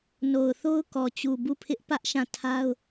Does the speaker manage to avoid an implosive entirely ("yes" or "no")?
yes